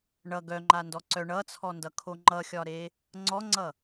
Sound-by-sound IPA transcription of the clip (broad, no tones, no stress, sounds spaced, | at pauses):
ɳ ʌ ɡ œ ŋ͡ǃ a n d ɔ ǀ œ ɳ ʌ t͡sʰ ɔ n d ʌ kʰ o ŋ͡ǃ ʌ xʲ ɒ ɾ e | ŋ͡ǀ ɔ ŋ͡ǀ ʌ